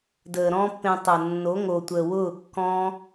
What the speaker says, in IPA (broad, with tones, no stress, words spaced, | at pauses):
dəː˨ɾɔ̃ː˦pːẽ˧tˤɤ˨ nːo˨˦ŋo˨tʷəː˨wʊː˦˨ kːɔ̃˦